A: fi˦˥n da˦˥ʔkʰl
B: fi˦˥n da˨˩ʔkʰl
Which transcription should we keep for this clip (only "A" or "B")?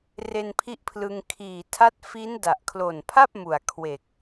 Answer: B